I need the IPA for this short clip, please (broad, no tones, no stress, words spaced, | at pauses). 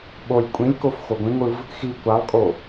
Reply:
ɓolʲ kʷʼĩlʲkof xoɡʷĩŋʷɯv | xi kʷalˠkʼo